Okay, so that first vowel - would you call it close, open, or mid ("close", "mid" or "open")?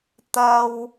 open